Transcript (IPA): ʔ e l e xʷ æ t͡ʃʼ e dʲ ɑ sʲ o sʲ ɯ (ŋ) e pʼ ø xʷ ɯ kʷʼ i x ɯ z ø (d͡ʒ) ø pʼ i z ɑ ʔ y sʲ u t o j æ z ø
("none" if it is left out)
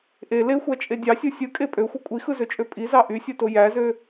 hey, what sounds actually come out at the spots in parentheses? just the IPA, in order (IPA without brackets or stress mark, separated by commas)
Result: kʼ, t͡ʃʼ